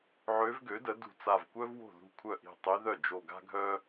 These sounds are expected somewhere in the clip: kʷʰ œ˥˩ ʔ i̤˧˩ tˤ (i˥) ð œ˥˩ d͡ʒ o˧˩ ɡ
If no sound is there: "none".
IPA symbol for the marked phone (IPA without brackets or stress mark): i˧˥